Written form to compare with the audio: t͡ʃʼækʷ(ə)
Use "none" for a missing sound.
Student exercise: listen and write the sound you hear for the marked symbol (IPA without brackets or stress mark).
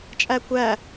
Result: æ